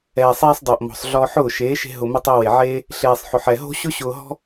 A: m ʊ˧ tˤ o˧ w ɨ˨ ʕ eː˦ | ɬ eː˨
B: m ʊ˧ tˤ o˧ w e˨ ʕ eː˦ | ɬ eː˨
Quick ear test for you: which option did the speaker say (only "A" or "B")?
B